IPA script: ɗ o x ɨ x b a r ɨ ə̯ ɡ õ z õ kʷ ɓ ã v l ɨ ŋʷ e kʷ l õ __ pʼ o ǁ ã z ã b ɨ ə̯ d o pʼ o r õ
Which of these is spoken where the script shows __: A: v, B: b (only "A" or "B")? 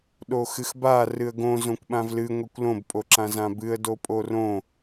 B